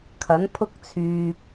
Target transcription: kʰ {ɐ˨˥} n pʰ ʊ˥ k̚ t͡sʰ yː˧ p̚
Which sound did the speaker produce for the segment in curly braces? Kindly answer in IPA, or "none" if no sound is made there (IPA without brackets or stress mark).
ɐ˨˥